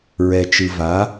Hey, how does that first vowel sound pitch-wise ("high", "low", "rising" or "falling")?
low